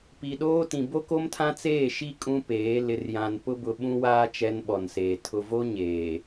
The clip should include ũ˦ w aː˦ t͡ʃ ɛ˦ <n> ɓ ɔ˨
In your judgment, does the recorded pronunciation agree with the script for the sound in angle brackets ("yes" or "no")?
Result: yes